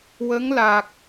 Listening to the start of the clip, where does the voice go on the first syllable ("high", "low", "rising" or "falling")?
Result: rising